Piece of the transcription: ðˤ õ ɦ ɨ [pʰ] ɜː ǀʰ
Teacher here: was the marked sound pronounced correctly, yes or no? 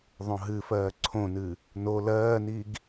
no